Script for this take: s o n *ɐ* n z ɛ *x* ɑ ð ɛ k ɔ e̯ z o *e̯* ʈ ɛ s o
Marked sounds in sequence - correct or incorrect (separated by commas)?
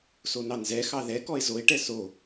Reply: incorrect, correct, correct